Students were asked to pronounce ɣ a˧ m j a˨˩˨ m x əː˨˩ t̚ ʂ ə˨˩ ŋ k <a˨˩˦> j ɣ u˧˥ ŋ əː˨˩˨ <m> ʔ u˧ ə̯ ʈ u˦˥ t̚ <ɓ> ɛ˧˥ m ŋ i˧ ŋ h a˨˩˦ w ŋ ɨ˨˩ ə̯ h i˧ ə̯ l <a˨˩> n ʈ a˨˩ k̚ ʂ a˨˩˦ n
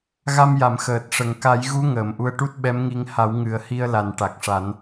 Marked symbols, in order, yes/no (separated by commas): yes, yes, yes, yes